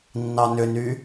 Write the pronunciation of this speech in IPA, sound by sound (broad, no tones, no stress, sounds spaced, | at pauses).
nː ɑ n ʏ n y